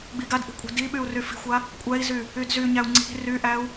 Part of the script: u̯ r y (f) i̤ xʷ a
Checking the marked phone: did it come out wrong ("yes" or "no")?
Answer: no